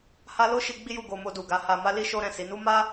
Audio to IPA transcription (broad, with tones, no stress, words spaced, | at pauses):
ha˦ lo˦ʃi˧ ɡ͡bi˦ju˦˨ɡo˧ mo˧du˨ ɡa˨˦ha˧ma˦li˦ ʃo˦ ɾɛ̃˦˨si˨˦ nu˦ma˦